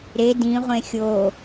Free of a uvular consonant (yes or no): no